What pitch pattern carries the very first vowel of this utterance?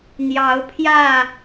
rising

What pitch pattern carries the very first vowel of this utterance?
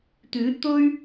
rising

